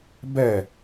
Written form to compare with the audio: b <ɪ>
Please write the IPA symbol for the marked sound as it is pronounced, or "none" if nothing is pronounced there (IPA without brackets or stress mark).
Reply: ɛ